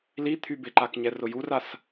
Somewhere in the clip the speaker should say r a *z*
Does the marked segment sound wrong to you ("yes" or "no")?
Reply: yes